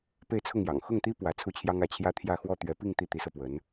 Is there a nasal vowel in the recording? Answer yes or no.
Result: no